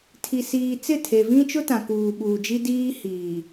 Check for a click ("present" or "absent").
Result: absent